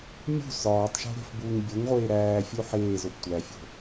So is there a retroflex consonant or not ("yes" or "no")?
no